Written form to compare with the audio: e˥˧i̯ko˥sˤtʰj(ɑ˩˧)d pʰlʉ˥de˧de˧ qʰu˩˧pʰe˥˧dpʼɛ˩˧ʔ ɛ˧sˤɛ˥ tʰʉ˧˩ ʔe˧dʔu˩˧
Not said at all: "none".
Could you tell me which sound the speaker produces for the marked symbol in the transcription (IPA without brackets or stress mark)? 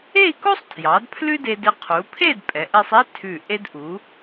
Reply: ɑ˩˧